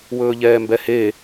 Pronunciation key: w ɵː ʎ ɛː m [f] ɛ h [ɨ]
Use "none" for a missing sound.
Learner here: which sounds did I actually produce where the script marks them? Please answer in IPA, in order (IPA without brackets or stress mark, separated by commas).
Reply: b, e